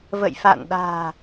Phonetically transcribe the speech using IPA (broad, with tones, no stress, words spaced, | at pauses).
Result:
və̰˧˨jfa̰˧˨nɗa̤ː˨˩